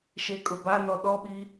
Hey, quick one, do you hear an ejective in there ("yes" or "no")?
yes